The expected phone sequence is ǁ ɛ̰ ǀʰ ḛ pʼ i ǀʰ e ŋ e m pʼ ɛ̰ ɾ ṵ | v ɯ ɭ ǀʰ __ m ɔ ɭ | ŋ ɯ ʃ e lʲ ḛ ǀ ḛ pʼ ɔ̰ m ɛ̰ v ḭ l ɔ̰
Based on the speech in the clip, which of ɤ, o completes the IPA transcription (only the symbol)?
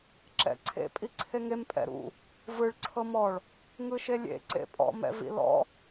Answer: ɤ